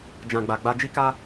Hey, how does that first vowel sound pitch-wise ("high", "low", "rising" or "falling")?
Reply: low